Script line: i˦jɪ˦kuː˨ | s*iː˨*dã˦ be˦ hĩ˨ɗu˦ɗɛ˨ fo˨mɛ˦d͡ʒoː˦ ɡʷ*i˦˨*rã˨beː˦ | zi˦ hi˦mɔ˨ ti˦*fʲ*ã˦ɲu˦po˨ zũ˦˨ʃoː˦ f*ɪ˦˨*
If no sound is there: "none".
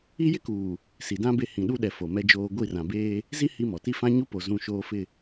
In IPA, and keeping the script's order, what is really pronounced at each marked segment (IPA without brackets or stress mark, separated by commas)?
i˨, i˦˨, f, ɪ˦˨